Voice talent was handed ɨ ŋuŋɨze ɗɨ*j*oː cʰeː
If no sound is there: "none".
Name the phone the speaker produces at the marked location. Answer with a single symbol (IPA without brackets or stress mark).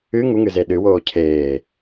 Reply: w